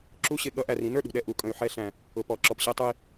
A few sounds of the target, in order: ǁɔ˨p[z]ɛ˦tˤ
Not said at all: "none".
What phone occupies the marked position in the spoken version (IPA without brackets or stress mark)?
ɕ